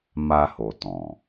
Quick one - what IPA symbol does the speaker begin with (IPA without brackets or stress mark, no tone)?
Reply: m